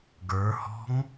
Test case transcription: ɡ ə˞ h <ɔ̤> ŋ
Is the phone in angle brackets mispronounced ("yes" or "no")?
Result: no